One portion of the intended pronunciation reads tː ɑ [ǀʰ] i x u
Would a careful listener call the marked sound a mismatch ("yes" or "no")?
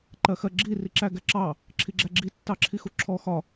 yes